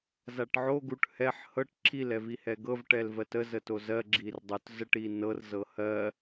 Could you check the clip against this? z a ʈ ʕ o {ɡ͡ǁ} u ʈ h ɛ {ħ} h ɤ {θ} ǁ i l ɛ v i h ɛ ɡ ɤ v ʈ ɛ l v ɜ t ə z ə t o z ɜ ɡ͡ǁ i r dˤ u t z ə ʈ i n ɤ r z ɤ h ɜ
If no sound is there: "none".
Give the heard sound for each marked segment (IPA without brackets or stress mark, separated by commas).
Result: ɡ, ħ, ʈ